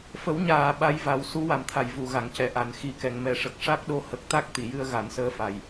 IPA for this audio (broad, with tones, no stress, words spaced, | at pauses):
fə˨˩˦wɲaː˨˩˨ ɓa˧˥jva˨˩˦w su˧˥ wa˨˩mt̪ʰa˨˩˨j vu˨˩˨ɣa˨˩˨ŋcɛ˨˩˨ ʔa˨˩n xi˨˩˦kɛ˨˩˨ŋmɛ˨˩ʂə˨˩k̚ ʂa˦˥k̚ ɗo˧hə˨˩k̚t̪a˦˥k̚ t̪i˨˩˨jɨ˧ə̯ ɣa˨˩˦nsəː˧˥fa˨˩j